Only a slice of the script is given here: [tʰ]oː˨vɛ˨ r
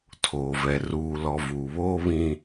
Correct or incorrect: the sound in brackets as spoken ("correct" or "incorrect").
correct